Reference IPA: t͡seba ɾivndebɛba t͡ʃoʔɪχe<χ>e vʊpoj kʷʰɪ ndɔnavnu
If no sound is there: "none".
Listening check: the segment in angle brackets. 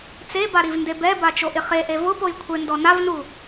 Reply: ʔ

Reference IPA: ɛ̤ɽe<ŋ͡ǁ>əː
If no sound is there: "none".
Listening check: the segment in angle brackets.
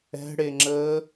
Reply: ŋ͡ǁ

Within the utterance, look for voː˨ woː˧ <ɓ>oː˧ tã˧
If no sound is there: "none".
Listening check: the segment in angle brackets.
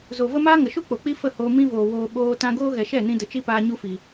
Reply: ɓ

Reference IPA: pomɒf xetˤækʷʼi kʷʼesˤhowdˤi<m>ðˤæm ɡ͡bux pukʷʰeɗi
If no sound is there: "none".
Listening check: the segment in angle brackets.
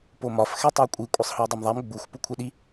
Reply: m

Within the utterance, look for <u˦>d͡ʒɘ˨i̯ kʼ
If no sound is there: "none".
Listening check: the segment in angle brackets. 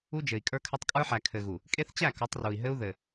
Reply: u˦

